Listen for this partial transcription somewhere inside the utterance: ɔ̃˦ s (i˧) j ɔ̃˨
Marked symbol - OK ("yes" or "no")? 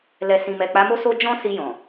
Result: yes